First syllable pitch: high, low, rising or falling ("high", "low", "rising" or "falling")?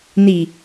low